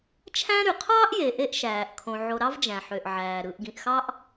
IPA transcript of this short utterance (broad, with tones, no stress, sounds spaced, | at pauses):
t͡ʃʰ æ̃˦ ɾ y˩ qʰ ɑː˥ ʔ j e˨ ʔ e˥ ʔ ʃ æː˩ ʔ kʰ õ˨ ʕ o˨ ɾ ɑ˥ v d͡ʒ æ̃˩ ħ ø˩ ʔ ʕ æː˩ ɾ ɯ˨ ʔ ɡ ĩ˩ ʔ x ɑ˥ ʔ